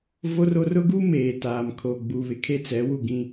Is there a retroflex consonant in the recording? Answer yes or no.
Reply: no